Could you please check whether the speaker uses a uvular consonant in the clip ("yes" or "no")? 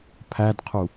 yes